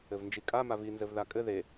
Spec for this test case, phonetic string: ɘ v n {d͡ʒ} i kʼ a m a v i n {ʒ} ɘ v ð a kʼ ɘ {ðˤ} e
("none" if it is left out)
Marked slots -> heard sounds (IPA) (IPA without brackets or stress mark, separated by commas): d͡ʒ, z, ð